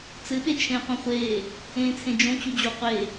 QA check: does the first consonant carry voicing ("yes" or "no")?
no